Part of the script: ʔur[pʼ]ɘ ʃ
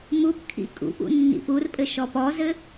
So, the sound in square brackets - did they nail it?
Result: yes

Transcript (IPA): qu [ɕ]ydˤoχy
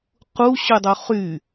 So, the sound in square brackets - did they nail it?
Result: yes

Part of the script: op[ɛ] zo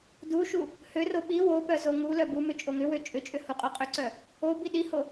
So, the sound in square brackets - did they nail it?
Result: no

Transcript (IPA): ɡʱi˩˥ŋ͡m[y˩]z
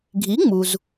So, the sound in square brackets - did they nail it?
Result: no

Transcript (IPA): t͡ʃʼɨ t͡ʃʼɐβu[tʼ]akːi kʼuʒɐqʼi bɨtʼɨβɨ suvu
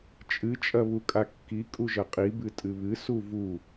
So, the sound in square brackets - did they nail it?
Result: no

